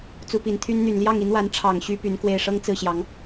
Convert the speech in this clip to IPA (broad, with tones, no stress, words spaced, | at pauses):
t͡su˧˥pi˨˩nt̪ʰy˥n n̪y˨˩nljɑ˥˩ŋi˧˥nwa˧˥n ʈ͡ʂʰɑ˨˩ŋɕy˧˥ py˧˥nkwe˥˩ɪ̯ ʂɤ˥ŋt͡sɹ̩˥˩ ɕjɑ˧˥ŋ